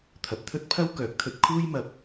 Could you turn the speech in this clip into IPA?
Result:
t̪ʰ ɐ˨ p̚ t̪ʰ ɵ˥ t̚ pʰ ɐ˥ w k œː˨˥ k̚ t̪ʰ ɵ˧ t̚ kʰ uː˥ j m ɐ˨ p̚

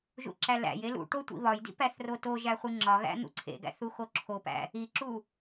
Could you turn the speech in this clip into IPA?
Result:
ʒ ṵ ǁ æ l æ̰ j e l ṵ ʈ o tʷ ḭ β ɒ j d ḭ p æ θ r o t o ʒ æ χʷ i ŋ͡ǁ ɒ ɣ æ̰ n̪ ṵ ǀʰ ḛ ɡ æ̰ θ u x o ǁʰ o p æ̰ | i ǁ u

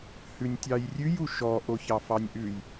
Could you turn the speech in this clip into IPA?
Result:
h ʉ nʲ tʲ ɑ j rʲ ʉ j u ʃ ɔ ʔ o ç ɑ f ɑ nʲ ʔ ʉ j

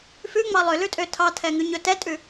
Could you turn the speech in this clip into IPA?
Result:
f ʉ ŋ͡m ɑ lˠ ø l ʉ tʼ ø tʰ ɑ tʰ ɛ ŋ ʉ ɲ ɵ t ɛ tʼ ʉ

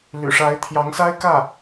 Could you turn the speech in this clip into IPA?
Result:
l y̰˨˩ ʂ a˧˥ ɪ̯ t̪ʰ j ɑ˧˥ ŋ s a˥ ɪ̯ k ä˥˩

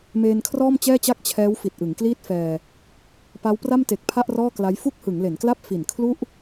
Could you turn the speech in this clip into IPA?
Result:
m eː˧ n kʰ r ɔː˥˩ m t͡ɕ ɛː˥˩ t͡ɕ a˥˩ k̚ t͡ɕʰ ɛː˦˥ w f i˨˩ t̚ ʔ ɯ˩˦ ŋ k l iː˥˩ t̚ f ɛː˧ | p a˦˥ w p r a˥˩ m t e˨˩ k̚ pʰ a˥˩ ʔ r ɔː˥˩ k l a˦˥ j f u˥˩ k̚ h ɯ˩˦ ŋ l e˩˦ n k l a˥˩ p̚ f i˨˩ n kʰ l u˥˩ ʔ

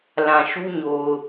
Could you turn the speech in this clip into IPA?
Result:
l ã˨ ʃ u˦ ɲ o˨ ʊ̯

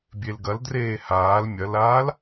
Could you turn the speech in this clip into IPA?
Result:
bʲ e l ɡ ɐ l d r eː h aː l mʲ ɐ l aː l

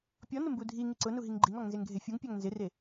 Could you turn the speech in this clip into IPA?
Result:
pʲ ɔ n ʊ m b u dʱ i ŋ i ǀ ʊ n u ɦ i ŋ ɡ͡ǃ i ŋ ɔ ŋ n z e ŋ ɡʱ e fʲ u ŋ pʲ a ŋ n z ɪ r e

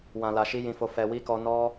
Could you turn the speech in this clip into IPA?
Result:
w ã˨ l a˨ ʃ i˧ j ĩ˨ f o˨ f ɛ˨ w i˧ k ɔ˧ n ɔ˦

